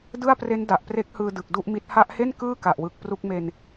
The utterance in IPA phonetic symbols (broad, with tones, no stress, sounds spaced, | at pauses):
d ɯ˥˩ a̯ p r e˦˥ n d a˨˩ ʔ p r e˦˥ k̚ h ɯː˧ d ɯ˨˩ k̚ d u˥˩ ʔ m i˦˥ t̚ h a˦˥ ʔ h e˥˩ n k ɯː˥˩ k a˨˩ ʔ w ɯ˨˩ k̚ p r u˥˩ k̚ m e˧ n